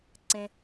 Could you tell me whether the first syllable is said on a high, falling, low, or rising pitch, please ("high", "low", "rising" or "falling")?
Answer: low